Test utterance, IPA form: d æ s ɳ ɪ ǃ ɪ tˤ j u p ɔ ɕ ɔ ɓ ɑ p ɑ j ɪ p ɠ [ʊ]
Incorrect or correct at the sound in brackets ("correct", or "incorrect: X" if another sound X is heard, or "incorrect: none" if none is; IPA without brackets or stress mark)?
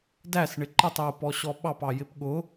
correct